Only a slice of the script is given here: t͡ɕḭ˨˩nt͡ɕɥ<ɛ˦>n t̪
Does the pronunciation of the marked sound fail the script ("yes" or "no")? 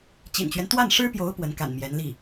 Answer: no